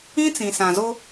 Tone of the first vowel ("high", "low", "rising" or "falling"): high